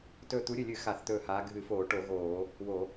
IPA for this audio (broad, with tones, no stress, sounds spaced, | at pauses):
t ɵː˧˩ t̪ u˨˦ ɾʲ ɨ˧˩ lʲ ɨ˧˩˧ x a˧˩˧ θ t̪ ɵː˧˩ h aː˨˦ ɡʱ ɨ˧˩˧ f oː˧˩˧ ʈ o˧˩˧ ɣ oː˧˩˧ | w o˧˩˧